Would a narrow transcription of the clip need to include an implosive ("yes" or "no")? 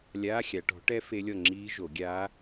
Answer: no